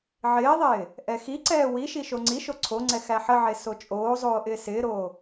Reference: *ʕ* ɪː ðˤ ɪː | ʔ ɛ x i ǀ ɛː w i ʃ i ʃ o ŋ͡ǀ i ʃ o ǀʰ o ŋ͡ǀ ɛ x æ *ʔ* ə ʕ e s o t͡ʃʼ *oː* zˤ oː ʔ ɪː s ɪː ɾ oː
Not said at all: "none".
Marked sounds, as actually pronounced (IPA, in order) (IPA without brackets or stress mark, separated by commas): ʕ, ħ, oː